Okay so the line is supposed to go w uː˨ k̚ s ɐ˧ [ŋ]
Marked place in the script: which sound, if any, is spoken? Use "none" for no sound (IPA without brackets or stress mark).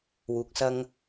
ŋ